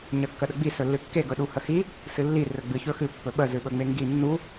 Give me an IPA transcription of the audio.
ɲ ə kː ə ɗ ə ɡ͡b i s ɵ lː ɨ kː e ɡ ɵ ɗ u h ə h i | s ɨ lː i r ɵ ɡ͡b ɨ ç ɵ x ɨ pː ɵ ɓ ə z ɨ ɓ ɵ ŋ͡m e ŋ ɡ i nː u

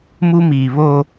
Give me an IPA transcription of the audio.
m u˦ m iː˨ β o˦

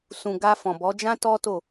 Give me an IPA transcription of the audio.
s ũ˨ ɡ a˧ f ɔ̃˨ b ɔ˨˦ d͡ʒ ã˦ t ɔ˦ t o˦˨

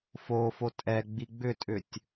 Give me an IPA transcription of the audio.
f oː f o tʼ ɛ ɡ͡b i ɡ͡b ʏ tʼ ʏ tʲ

